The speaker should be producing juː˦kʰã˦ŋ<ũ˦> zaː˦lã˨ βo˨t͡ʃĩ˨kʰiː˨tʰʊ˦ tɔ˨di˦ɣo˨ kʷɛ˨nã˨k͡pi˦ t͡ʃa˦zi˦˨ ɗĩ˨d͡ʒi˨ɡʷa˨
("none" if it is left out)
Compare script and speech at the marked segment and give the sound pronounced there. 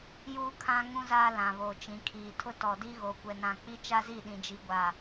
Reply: ũ˦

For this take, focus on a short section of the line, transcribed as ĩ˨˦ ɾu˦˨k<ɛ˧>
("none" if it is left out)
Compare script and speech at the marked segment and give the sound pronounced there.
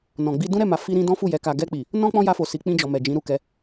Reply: ɛ˧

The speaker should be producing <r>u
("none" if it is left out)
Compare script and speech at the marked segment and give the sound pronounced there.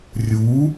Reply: rʲ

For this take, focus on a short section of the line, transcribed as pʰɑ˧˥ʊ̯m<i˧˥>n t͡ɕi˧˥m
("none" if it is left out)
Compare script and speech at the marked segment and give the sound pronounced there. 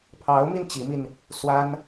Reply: i˧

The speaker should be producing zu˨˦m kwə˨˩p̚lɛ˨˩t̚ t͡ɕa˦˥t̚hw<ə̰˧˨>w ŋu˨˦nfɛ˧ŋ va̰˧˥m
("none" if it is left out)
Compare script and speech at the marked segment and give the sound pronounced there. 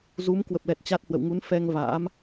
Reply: ə̰˧˨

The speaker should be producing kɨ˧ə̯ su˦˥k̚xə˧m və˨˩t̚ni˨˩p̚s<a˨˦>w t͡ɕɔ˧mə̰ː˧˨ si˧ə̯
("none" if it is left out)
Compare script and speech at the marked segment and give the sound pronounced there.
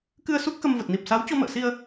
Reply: a˨˦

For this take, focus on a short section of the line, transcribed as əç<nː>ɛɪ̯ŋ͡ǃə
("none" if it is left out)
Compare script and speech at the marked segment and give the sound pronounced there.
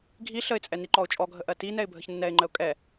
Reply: nː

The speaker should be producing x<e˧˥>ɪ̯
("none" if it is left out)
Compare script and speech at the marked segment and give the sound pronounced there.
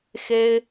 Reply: e˥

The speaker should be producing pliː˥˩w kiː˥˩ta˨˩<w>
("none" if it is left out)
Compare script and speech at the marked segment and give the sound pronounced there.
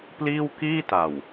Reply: w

